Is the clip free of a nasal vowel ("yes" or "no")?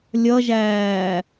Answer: yes